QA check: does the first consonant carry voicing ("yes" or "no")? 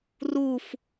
yes